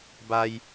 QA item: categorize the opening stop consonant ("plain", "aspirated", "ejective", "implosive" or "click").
plain